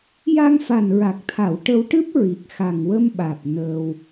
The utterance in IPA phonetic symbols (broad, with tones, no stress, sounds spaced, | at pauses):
j a˧ ŋ f a˨˩ n ɹ a˨˩ k̚ t̪ʰ a˨˩˨ w ʈ ə˧ w ʈ ɨ˦˥ p̚ ɹ i˨˩ k̚ x a˨˩ ŋ w ə˧ m ɓ aː˨˩ p̚ n əː˧ w